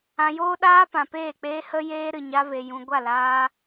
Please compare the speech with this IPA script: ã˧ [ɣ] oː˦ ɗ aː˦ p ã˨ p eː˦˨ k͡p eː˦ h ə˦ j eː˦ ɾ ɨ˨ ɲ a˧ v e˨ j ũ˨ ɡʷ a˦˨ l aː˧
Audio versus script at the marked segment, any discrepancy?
yes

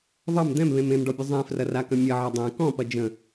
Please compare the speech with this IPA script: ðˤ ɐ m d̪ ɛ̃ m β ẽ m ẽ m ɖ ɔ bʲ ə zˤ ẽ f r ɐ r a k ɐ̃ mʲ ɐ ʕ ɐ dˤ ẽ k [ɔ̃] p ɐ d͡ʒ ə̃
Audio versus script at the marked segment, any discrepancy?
no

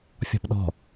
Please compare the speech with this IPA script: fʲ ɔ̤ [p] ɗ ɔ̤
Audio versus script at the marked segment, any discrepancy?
no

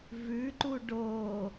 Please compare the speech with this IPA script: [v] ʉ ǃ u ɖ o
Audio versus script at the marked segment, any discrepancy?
no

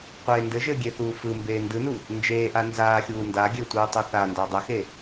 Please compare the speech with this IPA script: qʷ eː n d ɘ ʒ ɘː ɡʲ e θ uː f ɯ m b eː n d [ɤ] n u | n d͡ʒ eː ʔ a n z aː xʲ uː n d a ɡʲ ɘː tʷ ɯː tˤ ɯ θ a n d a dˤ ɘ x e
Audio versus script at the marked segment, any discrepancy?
yes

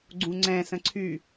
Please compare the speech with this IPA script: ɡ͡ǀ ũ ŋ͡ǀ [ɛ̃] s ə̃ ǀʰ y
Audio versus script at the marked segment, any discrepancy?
no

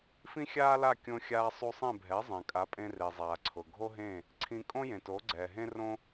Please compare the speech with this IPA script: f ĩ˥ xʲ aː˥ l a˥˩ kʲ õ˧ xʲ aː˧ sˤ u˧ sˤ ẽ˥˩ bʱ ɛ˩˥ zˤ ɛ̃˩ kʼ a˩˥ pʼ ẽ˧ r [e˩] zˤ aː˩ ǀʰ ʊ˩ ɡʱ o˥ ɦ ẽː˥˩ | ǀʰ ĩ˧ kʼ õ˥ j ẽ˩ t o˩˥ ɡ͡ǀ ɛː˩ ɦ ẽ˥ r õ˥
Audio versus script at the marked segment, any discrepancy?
no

